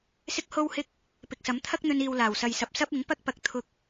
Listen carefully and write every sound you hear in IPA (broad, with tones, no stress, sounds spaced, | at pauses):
s ɪ˥ k̚ h o˥ w h ɪ˥ k̚ | p ɪ˨ k̚ s ɐ˨˥ m t̪ʰ ɐ˥ k̚ n̪ ɵ˧ n iː˨ w l aː˨˩ w s ɐ˨ j s ɐ˨ p̚ s ɐ˥ p̚ ɪ˨˥ ŋ p ɐ˥ k̚ p ɐ˧ k̚ t̪ʰ ʊ˧ k̚